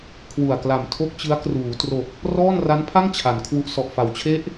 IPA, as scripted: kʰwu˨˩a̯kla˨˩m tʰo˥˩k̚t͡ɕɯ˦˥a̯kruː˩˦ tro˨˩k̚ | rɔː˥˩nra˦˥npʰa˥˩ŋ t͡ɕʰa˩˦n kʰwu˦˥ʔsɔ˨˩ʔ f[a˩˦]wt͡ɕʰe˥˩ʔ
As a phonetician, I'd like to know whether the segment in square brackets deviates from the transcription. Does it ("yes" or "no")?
no